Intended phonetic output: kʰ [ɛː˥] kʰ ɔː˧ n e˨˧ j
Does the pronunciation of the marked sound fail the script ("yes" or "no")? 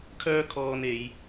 yes